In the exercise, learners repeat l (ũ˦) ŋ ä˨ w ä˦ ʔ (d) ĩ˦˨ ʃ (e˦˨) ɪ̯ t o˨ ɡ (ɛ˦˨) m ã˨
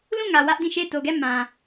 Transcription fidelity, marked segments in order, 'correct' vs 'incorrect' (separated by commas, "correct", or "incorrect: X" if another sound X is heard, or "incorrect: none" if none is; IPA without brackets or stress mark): incorrect: ũ˦˨, correct, correct, correct